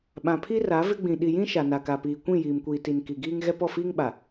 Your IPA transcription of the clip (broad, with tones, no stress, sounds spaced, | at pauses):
ɓ ã˨ pʰ i˦ r a˨˦ v ɪ˦ ɡ͡b ĩ˨ ɗ i˨ j ĩ˦ ʃ a˨ n a˨ k a˨ p iː˨ kʷ ĩ˦˨ j iː˨ m kʷ iː˨ t i˨ n k i˨ ɡ iː˦ ŋ ɣ ɛ˦ p ɔ˦˨ f iː˦ ŋ ɓ a˨